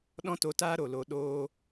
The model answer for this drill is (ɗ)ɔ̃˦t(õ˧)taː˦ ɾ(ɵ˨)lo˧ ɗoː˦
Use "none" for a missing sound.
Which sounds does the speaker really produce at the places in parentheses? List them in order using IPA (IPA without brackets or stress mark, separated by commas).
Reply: ɗ, o˧, o˨